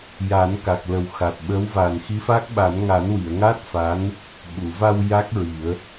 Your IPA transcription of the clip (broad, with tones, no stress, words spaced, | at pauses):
ja˨˩˦nka˨˩k̚lə˨˩w xa˨˩t̚ɓə˧˥wva˨˩n xi˧˥fa˦˥k̚ɓa˨˩˦n ŋa˨˩˦nwi˨˩˨ə̯ŋa˦˥t̚ fa˧˥n | ɓu˨˩˨va˧w ja˦˥k̚ ɹi˨˩˦ə̯